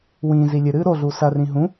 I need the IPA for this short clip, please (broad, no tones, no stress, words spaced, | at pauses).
wĩːzi lʲɨɾɨː ɾoɮu sɐrĩ ɦũ